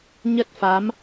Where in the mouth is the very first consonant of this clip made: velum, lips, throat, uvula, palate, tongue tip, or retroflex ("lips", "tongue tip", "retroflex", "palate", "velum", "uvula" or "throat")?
palate